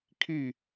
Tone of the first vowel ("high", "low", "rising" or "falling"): falling